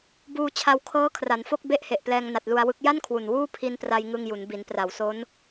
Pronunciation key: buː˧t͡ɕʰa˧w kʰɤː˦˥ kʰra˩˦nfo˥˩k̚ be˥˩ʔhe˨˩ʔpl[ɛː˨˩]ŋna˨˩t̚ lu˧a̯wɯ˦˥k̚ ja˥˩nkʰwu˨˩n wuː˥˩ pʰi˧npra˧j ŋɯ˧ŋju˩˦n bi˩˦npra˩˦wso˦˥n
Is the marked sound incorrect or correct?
incorrect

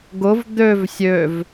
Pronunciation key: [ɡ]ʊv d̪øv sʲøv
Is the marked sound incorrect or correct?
correct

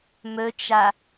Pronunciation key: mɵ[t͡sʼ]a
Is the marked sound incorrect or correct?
incorrect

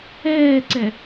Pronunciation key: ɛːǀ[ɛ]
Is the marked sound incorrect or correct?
correct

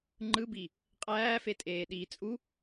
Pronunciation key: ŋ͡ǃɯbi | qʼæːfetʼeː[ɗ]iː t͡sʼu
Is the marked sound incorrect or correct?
correct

